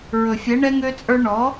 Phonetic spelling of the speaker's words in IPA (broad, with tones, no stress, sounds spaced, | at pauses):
ɹ ɵ˨ fʲ ɛ˨˦ ɳ ɛ˦ ŋ ø˦ t͡sʼ ə˞˦ ɳ ɔ˨˦